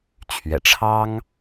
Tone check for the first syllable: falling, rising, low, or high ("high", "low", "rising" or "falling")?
low